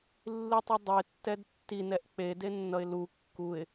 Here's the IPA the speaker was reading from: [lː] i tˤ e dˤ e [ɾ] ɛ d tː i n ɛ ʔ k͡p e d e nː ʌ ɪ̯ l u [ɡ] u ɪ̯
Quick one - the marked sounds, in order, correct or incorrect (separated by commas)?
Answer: correct, incorrect, incorrect